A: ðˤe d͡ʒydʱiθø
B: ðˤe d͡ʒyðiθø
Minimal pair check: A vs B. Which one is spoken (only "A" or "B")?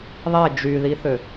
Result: B